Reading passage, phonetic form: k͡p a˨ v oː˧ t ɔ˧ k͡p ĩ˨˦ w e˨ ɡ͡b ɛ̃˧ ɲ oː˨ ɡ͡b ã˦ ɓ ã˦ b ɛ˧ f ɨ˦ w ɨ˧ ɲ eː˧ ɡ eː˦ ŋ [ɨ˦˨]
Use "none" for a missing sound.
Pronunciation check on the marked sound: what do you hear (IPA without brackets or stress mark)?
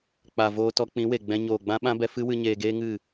ɨ˦˨